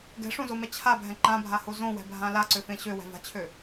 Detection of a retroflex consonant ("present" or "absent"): present